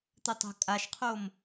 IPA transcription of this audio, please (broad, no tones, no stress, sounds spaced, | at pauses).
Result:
t̪ ə tˤ ə̤ kʼ a ʃ qʰ o m